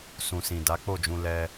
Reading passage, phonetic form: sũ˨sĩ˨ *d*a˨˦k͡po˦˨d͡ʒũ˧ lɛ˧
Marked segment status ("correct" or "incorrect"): correct